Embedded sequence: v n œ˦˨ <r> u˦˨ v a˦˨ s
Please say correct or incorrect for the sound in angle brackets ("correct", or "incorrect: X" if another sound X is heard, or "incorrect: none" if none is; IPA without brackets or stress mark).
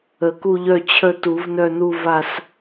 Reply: incorrect: n